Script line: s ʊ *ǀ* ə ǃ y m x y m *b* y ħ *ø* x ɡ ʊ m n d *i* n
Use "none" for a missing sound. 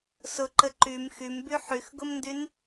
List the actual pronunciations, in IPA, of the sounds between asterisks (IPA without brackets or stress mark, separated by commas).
ǃ, b, y, y